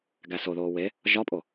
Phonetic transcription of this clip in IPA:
ɡæsoðoː we | ʒɒpʼo

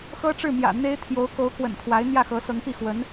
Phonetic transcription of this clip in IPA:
xɤ˥ʈ͡ʂɻ̩˥˩mjä̰˨˩ n̪e˥ɪ̯ t̪ʰjo˧˥ʊ̯ko˧˥ʊ̯ kwə̰˨˩nt̪ʰwa˧˥ɪ̯ n̪jä˥˩xɤ˧˥sɤ˧˥ŋpi˥˩ xwə˧˥n

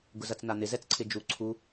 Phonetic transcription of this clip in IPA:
ɡʊzɐt͡snan̪ɪ zɛt͡sǀʰɪd͡ʒu ǀʰu

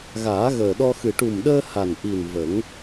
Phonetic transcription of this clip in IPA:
ɣaː˨˩˦ɣəː˨˩ɗɔ˧xɨ˨˩ ʈu˨˩mɗəː˧ ha˨˩nʔi˨˩n və˨˩˦ŋ

